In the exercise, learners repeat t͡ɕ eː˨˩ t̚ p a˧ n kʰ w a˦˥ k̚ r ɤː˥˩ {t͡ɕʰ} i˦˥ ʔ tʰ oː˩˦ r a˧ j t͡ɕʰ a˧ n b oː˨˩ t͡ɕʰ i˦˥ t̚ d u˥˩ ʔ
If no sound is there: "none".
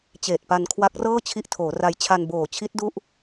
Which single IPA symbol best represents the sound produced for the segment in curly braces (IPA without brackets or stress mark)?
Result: t͡ɕʰ